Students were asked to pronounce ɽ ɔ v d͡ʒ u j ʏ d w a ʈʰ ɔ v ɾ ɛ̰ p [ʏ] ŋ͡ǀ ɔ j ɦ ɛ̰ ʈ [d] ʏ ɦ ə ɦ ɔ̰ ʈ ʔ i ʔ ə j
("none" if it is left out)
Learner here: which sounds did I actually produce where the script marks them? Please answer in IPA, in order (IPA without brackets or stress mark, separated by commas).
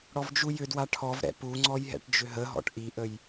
u, d͡ʒ